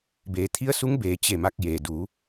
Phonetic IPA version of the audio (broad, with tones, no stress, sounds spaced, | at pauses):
b eː˩˧ t̪ʰ i˧˥ ə̯ s u˧˥ ŋ b eː˩˧ t͡ɕ e˧˩ m a˧ k̚ j e˩ d u˩˧